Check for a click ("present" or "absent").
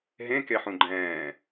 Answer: present